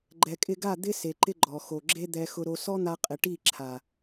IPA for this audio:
ɡ͡ǃɛ˨kʼɪ˧ɡa˦˨ d̪ɪ˦ se˨ǃɪ˦ɡ͡ǃɔ˨ xo˨ɡ͡ǁe˦ d̪ɛ˧ xʊ˧ɾo˧ sɔ˦n̪a˧qʼɪ˨ ʈi˦˨ǁʰa˨

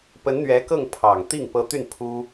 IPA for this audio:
pə˧˥nn̪ɥɛ˧˥kɤ˥˩ŋ pʰɑ˨˩ŋt̪i˥˩ŋ pɤ˧˥ t̪y˥˩n pʰu˥

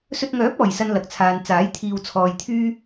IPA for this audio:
sɵ˧t̚ŋœː˨˥p̚ɔː˨˩jsɐ˨n lɐ˨k̚t͡sʰaː˨n t͡saː˨˥jt̪ʰiː˧w t͡sʰɔː˨jt̪ʰyː˥

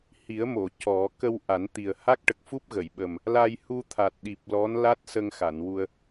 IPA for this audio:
hi˨˩˦ə̯mo˨˩˨ cɔ˨˩˦ kə˧w ʔa˨˩˦nt̪i˨˩ə̯ ha˦˥k̚ ʈə˨˩k̚fu˦˥p̚ɣə˨˩˨jɓə˨˩m | la˧jhu˧ t̪ʰa˨˩t̚ɗi˨˩p̚ lɔ˧˥nla˦˥t̚sə˧ŋxa˨˩˨n wu˧ə̯

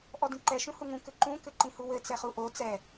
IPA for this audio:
ʔɔdĩǃɛ ʃũhuŋũ kɘǃũ kɘǃĩhuwɘ t͡sɛχuʔo t͡sɛ

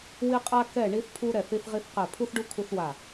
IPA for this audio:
wi˧qʼa˧ kɛ˧˩ ɳi˧θpʰu˧ɾɛ˧˩θ i˧θʁi˧θqɛ˧˩ pʰu˧θɖu˧ kʰu˧θwa˧˩

